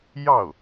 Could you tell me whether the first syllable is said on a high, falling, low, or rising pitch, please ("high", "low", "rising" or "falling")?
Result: falling